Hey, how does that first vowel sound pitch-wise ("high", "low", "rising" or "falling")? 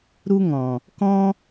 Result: high